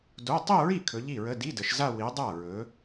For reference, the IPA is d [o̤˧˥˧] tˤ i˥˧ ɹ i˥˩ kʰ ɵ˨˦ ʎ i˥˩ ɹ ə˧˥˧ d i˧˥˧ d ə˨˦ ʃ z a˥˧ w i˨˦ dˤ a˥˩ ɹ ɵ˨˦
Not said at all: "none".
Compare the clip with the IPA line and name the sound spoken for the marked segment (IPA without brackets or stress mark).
o˧˥˧